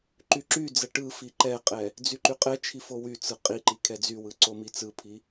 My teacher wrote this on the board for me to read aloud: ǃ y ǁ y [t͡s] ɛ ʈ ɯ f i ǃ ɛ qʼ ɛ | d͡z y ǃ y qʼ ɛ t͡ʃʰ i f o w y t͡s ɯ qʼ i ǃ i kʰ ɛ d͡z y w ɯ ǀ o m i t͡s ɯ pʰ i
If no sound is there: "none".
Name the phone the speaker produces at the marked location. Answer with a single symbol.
d͡z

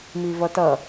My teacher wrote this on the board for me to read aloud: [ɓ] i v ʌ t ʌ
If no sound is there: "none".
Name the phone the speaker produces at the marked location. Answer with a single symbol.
m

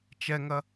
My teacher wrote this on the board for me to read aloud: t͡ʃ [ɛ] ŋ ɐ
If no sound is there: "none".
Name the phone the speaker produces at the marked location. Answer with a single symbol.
ɛ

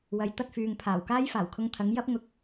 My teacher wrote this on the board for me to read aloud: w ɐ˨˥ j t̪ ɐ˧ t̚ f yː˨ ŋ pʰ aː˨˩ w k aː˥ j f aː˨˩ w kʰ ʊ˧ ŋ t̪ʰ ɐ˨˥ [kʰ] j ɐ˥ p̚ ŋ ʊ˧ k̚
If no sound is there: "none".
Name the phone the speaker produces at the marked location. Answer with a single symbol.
ŋ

